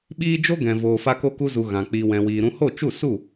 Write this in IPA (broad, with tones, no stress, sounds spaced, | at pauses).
ɓ iː˦ d͡ʒ o˦ ɡ ɛ̃˨ v oː˨ f a˦ k o˦ k u˦ z u˧ ɣ ã˨ k͡p iː˨ w ɛ̃˨ w iː˨ ɾ ũ˧ h o˦˨ t͡ʃ u˦˨ s u˦˨